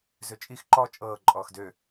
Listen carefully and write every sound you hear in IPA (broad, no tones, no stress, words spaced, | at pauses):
zøt͡ʃʼix ǃɔ t͡ʃʼɤː ǃʼɔːxdø